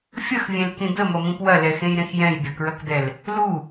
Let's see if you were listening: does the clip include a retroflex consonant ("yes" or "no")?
no